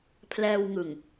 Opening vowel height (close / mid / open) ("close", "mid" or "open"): mid